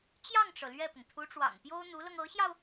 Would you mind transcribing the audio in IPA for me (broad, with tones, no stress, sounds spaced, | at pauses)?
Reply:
t͡ɕ j ɑ˥˩ ŋ ʈ͡ʂ ɤ˩ l ɥ ɛ˥˩ p ʊ˩ ŋ t̪ʰ u˧˥ ʈ͡ʂ w ɑ̰˨˩ ŋ p j o˥ ʊ̯ n̪ u˧˥ l ɤ˧ ŋ ɤ˧˥ ɕ j ɑ˧ ʊ̯